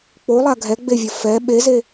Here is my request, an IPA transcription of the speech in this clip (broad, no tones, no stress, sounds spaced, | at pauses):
k͡p o lˠ a ɡʱ ɛ ɡ͡b e vʲ ɐ f ɛ ɓ e z e